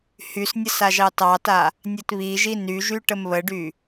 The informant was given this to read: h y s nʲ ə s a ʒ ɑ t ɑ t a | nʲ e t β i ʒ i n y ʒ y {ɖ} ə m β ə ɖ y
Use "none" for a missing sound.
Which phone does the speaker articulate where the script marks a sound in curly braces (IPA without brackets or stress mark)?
ʈ